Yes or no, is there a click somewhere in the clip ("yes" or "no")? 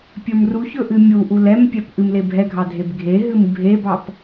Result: no